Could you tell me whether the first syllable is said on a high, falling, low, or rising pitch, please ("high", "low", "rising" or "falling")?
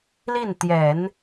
falling